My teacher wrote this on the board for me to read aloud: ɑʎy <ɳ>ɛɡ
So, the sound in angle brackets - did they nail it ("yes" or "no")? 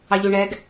yes